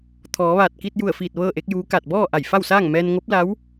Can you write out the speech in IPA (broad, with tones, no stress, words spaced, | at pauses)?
t̪ʰɔː˩˧ʋaː˧˩t̚ ki˧t̚ju˧˩ə̯fiː˧˩t̚ ʋɤː˥˨ʔe˧˥k̚juː˧˥ kaː˧˩t̚bɔː˥˨ʔa˧˩j fa˥˨wsaː˥˨ŋ mɛː˧nŋo˧˥p̚la˧˥w